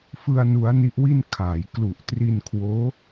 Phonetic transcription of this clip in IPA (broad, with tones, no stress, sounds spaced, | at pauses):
f ɯ˧ a̯ n u˦˥ a̯ n i˦˥ ʔ w i˥˩ n kʰ aː˩˦ j k l u˨˩ ʔ t r i˧ n kʰ w oː˦˥